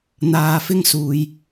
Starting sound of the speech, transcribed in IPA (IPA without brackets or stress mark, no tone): n̪